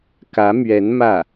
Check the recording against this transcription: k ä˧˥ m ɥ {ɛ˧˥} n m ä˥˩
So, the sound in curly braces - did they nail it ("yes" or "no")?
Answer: yes